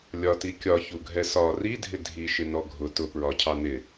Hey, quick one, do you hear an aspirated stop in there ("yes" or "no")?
yes